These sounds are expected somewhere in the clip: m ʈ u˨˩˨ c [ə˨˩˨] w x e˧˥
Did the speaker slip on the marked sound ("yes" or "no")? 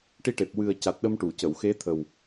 no